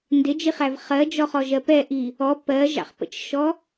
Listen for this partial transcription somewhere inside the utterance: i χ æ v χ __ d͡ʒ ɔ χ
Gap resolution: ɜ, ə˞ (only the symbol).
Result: ɜ